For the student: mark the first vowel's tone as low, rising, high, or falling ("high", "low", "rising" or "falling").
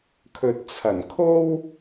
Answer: low